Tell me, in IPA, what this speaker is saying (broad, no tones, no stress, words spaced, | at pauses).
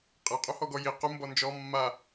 qʼeqʼuhɔɡɔ ji qu mbɔnd͡ʒɔ mːa